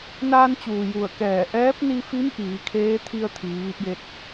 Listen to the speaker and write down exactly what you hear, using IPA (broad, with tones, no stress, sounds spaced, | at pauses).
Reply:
n aː˧ n t͡ɕ uː˩ j u˧˩ ə̯ k ɛː˧˩ ʔ ɛː˧˥ p̚ n i˧ f i˧˥ m ʔ iː˩˧ kʰ eː˧˥ t̪ʰ i˧ ə̯ t̪ʰ iː˩˧ ʋ i˧ p̚ j e˧ t̚